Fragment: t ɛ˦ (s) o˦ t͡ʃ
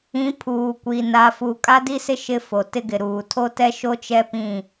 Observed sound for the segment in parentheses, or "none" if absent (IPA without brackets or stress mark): ʃ